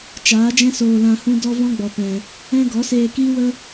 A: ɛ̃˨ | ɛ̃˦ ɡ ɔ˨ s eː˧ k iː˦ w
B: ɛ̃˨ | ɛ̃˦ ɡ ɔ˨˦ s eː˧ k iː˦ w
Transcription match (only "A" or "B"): B